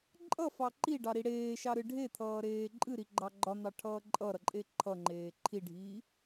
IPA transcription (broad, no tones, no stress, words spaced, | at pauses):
ǃʼʌfɑ ǃiɖɑɾi ɽeːʃɑɾɨ ɖʱet̪ʰʌːɾeː ǃʼɨɾiɡ͡ǃɑ ɡ͡ǃɒn̪ɑʈʰʌː ǃʼʌɾʌǃʼe ǃʰʌŋ͡ǃeː ǃʰiɖʱiː